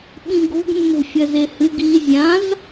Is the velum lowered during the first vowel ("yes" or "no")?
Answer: yes